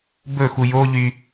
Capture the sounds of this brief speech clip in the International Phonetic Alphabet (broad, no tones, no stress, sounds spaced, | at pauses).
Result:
b ɵ x u j o ʎ y